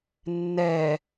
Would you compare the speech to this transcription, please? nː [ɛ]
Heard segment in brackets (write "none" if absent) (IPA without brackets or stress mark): ɛ